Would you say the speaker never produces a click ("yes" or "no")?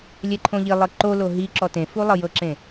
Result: no